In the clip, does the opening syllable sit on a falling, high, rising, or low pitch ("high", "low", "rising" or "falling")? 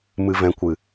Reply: low